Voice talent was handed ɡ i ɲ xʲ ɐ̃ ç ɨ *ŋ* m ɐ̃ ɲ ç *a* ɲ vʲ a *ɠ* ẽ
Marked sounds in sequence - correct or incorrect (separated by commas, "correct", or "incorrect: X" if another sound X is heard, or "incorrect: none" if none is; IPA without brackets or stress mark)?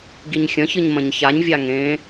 incorrect: ɲ, correct, incorrect: ŋ